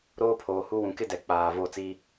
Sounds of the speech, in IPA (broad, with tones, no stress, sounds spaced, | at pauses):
ɾ oː˦ pʰ oː˨ h u˦ w ũ˨ k ɪ˦ d ɛ˨ k͡p aː˨ v o˦˨ t͡s iː˦